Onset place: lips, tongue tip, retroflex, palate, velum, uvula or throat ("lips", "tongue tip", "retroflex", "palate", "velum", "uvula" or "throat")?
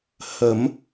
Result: throat